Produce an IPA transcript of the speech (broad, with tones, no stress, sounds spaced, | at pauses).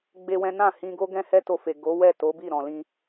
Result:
ɡ͡b e˦ w ɛ̃˦ n ã˦˨ h ĩ˧ ɡ o˦ ɡ ɛ̃˦ h ɛ˦ t o˧ f e˨ ɡ o˨˦ w ɛ˦˨ t o˨˦ b i˦˨ ɾ ɔ̃˨ l ĩ˧